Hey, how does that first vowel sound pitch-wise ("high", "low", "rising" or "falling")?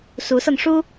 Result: rising